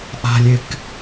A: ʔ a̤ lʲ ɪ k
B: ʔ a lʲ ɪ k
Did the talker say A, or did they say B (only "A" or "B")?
A